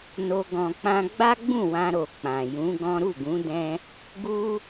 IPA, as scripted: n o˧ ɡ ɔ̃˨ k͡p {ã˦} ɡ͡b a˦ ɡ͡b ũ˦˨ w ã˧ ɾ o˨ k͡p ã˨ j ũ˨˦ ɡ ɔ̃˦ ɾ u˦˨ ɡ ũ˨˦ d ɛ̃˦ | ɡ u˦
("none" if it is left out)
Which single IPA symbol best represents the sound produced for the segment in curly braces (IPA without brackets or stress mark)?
ã˧